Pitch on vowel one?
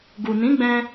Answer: low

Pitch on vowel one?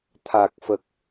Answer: low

